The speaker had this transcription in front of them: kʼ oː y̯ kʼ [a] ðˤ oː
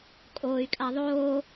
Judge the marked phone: correct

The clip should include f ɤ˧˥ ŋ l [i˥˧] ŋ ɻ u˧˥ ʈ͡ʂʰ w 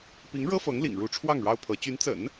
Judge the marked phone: incorrect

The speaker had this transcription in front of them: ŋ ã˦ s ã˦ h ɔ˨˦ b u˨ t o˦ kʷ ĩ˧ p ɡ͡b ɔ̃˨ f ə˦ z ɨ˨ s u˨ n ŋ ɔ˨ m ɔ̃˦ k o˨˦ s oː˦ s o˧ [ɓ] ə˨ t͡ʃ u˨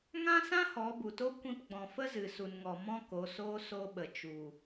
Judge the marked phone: correct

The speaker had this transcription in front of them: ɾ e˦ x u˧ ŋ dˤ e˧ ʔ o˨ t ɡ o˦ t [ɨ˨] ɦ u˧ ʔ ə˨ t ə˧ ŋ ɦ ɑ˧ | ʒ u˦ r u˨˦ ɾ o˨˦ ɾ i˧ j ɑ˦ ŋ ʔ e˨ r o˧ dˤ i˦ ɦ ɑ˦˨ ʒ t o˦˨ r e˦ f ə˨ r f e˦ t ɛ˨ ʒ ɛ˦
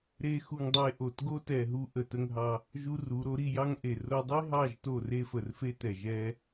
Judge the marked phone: incorrect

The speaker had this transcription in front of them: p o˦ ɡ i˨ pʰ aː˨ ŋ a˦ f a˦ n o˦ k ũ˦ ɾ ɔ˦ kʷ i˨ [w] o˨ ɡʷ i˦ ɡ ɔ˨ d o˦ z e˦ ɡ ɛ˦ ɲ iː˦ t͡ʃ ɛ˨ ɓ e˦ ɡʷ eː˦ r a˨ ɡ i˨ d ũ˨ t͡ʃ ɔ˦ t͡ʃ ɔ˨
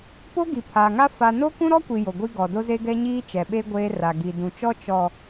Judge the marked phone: incorrect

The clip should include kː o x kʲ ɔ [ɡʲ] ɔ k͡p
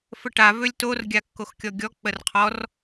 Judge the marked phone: correct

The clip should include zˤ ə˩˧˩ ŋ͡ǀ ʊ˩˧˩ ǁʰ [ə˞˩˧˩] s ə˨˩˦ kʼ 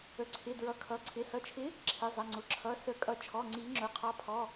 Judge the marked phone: incorrect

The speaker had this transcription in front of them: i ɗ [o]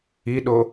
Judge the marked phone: correct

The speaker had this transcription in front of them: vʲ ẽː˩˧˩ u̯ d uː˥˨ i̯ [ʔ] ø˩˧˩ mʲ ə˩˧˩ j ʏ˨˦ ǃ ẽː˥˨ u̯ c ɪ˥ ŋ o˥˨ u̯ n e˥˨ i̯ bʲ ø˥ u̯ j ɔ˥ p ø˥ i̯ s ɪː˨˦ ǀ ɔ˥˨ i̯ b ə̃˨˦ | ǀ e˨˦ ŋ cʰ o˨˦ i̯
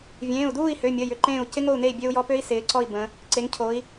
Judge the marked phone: incorrect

